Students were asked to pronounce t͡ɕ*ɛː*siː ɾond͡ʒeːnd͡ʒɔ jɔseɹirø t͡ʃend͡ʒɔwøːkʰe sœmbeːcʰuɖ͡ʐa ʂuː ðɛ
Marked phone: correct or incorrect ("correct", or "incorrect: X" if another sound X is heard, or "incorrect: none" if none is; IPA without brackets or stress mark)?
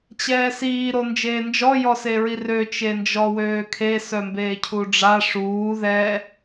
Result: correct